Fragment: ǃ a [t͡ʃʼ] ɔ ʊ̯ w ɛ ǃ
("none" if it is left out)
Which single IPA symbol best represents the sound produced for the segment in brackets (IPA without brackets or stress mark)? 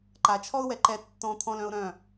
t͡ʃʰ